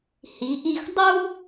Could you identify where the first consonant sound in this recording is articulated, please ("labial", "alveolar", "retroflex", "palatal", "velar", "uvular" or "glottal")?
glottal